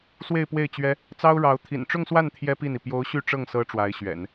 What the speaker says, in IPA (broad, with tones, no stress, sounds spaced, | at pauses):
s w e˥˧ ɪ̯ p w e˥˩ ɪ̯ t͡ɕ ɥ ɛ˥ | t͡s ɑ˥ ʊ̯ ɻ ɑ˧˥ ʊ̯ t̪ʰ ḭ˨˩ n ʈ͡ʂ ʊ˥˧ ŋ s w a˥˩ n t̪ʰ j ɛ˥ p i˥˩ n i˩ p j o˧˥ ʊ̯ ɕ y˥˧ ʈ͡ʂ ɤ˥˩ ŋ s ɤ˥ ʈ͡ʂ w a˧˥ ɪ̯ ɕ ɥ ɛ̰˨˩˦ n